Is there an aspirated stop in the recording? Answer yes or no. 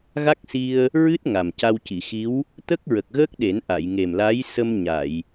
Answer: no